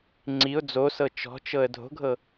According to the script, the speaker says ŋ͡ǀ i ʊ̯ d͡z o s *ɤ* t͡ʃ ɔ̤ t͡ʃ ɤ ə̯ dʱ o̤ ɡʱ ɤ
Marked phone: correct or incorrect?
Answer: correct